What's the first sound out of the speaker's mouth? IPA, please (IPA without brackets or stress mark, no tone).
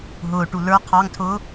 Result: ɦ